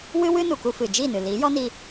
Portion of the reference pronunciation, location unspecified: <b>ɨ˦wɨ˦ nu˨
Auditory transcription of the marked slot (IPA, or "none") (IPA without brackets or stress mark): w